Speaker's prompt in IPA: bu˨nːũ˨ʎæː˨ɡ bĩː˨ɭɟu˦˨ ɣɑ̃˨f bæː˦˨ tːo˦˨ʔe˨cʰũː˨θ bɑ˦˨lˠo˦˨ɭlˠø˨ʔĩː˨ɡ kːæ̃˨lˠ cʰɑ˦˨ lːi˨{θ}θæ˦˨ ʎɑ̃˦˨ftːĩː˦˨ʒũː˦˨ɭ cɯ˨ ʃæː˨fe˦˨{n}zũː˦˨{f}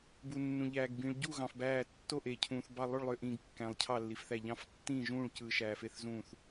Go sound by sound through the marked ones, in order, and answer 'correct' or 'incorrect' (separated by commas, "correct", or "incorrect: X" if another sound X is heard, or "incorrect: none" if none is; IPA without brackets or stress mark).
incorrect: f, incorrect: θ, incorrect: θ